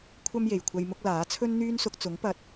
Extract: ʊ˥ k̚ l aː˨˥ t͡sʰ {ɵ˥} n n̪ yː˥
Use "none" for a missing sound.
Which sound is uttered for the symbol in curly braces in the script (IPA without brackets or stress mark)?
ɵ˥